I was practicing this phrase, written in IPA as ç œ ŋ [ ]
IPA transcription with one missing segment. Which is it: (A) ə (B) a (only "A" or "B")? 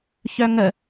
A